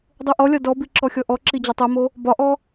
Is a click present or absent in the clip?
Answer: present